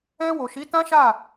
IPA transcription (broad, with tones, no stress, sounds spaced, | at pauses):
ɛ̃˧ w o˨ ʃ i˨˦ t ã˦ ʃ a˦˨